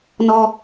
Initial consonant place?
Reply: alveolar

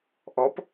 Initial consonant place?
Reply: glottal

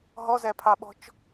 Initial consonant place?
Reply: glottal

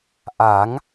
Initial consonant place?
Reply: glottal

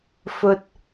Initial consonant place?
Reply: labial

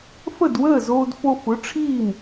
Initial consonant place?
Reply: labial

